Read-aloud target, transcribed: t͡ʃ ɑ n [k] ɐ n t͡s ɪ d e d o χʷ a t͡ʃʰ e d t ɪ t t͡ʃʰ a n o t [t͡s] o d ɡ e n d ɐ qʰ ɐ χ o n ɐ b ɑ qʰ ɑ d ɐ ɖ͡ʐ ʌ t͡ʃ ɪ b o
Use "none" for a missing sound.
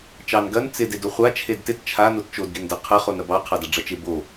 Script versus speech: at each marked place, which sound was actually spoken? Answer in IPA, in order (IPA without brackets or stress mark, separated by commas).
ɡ, t͡ʃ